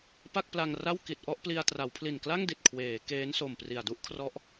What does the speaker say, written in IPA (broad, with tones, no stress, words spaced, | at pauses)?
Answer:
pa˥˩k̚pla˧ŋra˥˩w ki˨˩t̚ʔɔ˥˩ʔpli˧a̯ tra˩˦wpʰli˨˩nkla˥˩ŋdi˨˩t̚ kʰweː˩˦ keː˦˥nso˨˩mpri˨˩a̯ du˥˩ʔkʰrɔ˦˥ʔ